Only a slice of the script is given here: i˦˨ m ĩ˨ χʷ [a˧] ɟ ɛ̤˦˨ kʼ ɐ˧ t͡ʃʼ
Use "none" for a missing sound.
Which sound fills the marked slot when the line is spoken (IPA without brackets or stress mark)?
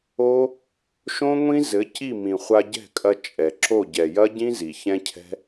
a˧